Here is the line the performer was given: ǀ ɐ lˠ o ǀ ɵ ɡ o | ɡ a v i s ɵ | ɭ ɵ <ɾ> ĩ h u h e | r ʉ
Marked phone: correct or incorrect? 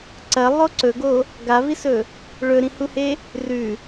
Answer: correct